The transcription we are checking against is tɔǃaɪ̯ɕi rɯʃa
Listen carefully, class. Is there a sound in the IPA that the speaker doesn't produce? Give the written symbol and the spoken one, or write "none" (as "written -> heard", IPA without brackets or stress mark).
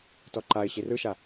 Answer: none